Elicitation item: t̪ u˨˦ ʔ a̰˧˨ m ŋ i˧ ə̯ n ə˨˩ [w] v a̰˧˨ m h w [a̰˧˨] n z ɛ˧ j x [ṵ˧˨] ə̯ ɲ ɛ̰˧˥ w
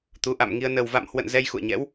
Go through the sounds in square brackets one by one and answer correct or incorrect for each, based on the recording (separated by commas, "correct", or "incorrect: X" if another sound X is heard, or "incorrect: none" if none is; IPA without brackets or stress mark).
correct, incorrect: ə̰˧˨, correct